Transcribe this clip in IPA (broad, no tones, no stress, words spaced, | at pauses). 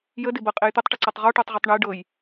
jədɪbɤqʼej t̪etˤʈəǀatˤ ʁɔʈɤtˤʁʉtˤ ɳəj ɖɤj